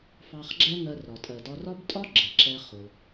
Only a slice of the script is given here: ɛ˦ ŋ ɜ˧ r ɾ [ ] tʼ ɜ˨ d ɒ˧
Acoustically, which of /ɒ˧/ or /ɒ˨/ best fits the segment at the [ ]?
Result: ɒ˨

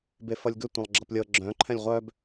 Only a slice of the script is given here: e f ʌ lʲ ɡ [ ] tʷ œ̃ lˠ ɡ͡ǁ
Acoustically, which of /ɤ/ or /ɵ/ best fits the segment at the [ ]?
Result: ɵ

